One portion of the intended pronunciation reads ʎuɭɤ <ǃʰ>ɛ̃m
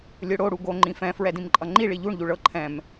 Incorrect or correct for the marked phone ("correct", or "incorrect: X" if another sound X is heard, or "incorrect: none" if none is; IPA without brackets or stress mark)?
correct